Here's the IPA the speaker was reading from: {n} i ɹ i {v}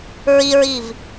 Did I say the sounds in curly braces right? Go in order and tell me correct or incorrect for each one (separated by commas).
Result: incorrect, correct